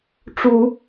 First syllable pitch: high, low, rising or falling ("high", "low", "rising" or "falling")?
low